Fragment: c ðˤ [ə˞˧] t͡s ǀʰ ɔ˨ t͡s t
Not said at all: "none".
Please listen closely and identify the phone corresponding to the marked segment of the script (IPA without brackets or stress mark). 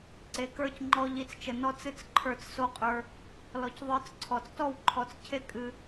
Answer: ə˞˦